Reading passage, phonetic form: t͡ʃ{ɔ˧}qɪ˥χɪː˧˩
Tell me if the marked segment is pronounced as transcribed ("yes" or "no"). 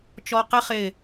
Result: yes